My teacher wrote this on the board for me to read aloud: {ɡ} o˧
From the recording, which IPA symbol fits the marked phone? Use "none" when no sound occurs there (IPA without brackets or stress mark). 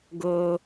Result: ɡ